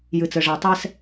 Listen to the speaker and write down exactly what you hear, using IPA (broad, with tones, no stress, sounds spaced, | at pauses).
j ɨ˨ t͡s ɘ˨ ʐ a˨ tˤ ɛ˦ s